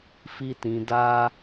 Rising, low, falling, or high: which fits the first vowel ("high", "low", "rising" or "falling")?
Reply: high